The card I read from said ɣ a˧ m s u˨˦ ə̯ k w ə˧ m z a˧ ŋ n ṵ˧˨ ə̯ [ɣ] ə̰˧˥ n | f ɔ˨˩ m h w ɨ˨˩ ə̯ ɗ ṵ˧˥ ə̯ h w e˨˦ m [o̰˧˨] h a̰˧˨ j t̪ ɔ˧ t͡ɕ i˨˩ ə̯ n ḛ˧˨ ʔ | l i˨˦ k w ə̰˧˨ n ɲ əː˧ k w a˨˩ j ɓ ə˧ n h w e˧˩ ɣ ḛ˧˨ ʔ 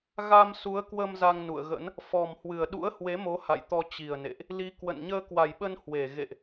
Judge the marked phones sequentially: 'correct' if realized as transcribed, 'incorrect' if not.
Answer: correct, incorrect: o˨˦

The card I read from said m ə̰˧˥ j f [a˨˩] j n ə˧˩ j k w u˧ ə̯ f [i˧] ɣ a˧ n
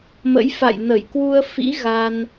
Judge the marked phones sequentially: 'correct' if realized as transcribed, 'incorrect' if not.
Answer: incorrect: a̰˧˨, incorrect: ḭ˧˥

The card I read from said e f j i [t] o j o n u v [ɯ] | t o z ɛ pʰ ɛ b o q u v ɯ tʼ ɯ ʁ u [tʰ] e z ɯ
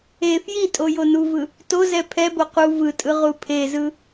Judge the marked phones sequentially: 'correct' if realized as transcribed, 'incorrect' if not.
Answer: incorrect: tʼ, correct, incorrect: pʰ

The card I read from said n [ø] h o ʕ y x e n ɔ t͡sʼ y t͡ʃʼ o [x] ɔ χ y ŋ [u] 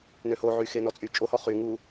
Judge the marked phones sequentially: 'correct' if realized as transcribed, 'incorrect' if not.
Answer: correct, incorrect: h, correct

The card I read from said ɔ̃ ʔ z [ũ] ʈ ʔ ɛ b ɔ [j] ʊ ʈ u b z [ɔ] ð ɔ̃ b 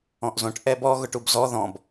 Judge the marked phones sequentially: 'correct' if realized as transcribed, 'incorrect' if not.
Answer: incorrect: õ, incorrect: ɣ, correct

